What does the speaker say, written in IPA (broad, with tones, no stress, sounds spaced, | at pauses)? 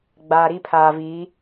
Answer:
ɡ͡b aː˨ ɾ i˦ pʰ aː˨ v iː˨˦